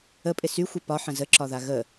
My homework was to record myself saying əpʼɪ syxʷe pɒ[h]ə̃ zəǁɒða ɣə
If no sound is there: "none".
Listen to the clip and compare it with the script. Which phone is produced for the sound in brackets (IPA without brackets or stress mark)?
ħ